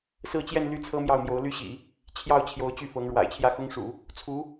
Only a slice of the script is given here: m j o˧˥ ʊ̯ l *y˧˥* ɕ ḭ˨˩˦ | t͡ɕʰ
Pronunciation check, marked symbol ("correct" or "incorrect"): incorrect